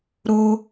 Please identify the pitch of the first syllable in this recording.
high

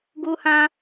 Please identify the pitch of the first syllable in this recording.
high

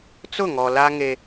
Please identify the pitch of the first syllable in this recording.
falling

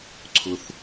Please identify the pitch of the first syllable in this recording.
high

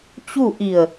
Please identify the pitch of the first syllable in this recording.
falling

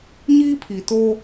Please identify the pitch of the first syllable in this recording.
high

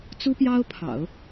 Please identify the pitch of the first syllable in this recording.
high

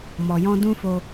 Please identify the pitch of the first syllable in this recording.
low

